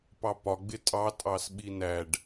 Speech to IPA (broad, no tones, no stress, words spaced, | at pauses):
pɑpɒ ɡ͡bɪtʼɑ tʼɑsɓinæɖ